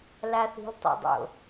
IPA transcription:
laθi̤ltˤḛdˤo̰

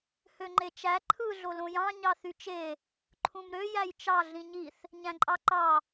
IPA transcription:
høŋ͡ǃet͡ʃæ ǃʰɯ ɮolõjɑ̃ ɲɑθyt͡ʃe | ǃʰũmɾø jæjt͡ʃɑ ɮĩɲiθ | ɲæ̃ǃʼɑǃɑ

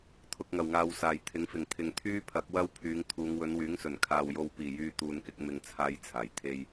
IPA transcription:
t̪ʰʊ˨k̚ŋɐ˨˩wŋaː˨w saː˨˩jt̪ʰɪ˨˥ŋfɪ˨˩ŋ t̪ʰɪ˨˩ŋt̪ʰyː˥pʰɐ˨˥k̚ wɐ˥w pʰyː˨˧ŋt̪ʰuː˨˧ŋ wɵ˨˧nwyː˨˥ŋsɵ˨˩n kʰaː˨wjo˧w piː˨˩jyː˨ t̪uː˨nkɪ˧k̚ mɪ˥ŋt͡sʰaː˥jt͡sʰaː˨˩j t̪ʰe˧j

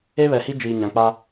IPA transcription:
e˦βɛ˨hi˦ d͡ʒiː˨ɲã˨k͡pa˦

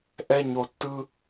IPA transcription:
ʔɛ˥ɲo˦ tːɯ˥

